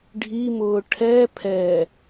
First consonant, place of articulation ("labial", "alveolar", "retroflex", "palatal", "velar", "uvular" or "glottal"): retroflex